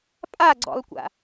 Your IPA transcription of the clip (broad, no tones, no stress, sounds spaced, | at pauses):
pʼ a ɡ͡ǀ ɔ̰ lˠ kʷ a̰